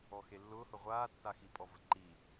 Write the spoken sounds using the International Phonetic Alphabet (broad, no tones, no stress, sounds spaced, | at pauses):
ɔ x e lː ʊː h ʊ ʁʷ aː tː a x i pʼ ɔ v ə ǃ i